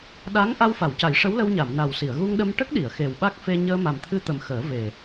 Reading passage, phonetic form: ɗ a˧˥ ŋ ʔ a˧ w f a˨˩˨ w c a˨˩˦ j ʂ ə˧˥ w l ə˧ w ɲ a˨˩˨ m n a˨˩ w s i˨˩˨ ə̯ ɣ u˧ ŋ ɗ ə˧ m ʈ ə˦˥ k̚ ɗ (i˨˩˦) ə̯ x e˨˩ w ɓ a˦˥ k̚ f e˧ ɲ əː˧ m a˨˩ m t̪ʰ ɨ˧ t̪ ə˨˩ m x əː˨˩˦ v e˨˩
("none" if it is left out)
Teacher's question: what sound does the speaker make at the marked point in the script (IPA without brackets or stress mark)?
i˨˩˨